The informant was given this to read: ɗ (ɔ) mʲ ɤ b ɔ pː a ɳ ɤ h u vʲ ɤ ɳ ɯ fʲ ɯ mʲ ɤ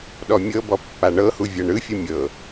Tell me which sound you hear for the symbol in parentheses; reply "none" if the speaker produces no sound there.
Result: ɔ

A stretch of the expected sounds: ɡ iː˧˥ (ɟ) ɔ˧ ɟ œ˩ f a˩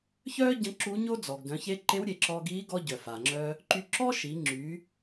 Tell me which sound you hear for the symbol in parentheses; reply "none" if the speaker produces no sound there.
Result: ɡ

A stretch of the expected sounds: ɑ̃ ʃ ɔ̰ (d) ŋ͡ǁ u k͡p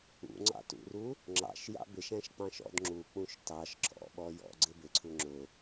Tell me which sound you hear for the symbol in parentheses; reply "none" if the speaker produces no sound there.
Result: d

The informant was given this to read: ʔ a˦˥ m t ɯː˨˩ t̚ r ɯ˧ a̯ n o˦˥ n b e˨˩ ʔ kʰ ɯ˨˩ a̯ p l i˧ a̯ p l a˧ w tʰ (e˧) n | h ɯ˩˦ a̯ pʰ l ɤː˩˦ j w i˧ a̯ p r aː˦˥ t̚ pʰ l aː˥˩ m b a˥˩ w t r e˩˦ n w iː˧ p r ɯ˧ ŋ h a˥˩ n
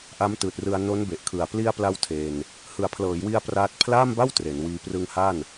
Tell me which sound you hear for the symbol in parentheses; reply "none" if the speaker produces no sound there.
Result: e˧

